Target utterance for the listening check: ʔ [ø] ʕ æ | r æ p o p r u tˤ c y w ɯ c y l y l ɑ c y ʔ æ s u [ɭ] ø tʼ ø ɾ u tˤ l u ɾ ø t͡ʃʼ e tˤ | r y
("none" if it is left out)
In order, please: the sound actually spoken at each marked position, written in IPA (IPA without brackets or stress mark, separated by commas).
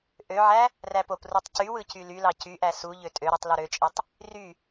ø, ʎ